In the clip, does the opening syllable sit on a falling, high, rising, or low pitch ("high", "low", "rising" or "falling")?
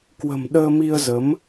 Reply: low